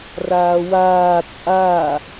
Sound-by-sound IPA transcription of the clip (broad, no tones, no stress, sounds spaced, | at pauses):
r aː w aː t͡sʼ a